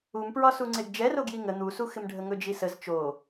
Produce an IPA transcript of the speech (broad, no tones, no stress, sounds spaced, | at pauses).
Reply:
u m p ɹ ɒ s u ŋ͡ǀ e ɡ d͡ʒ ɛ r o ɡ j i ŋ ə n̪ u s u x ɪ m ɖʱ ə ŋ ɵ d͡ʒ i s ə z t͡ʃ o